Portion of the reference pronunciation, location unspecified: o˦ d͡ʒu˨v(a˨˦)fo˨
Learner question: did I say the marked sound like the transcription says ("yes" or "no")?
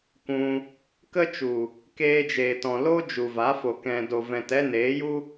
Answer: yes